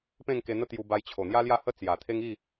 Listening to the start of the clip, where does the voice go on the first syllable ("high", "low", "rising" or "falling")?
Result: falling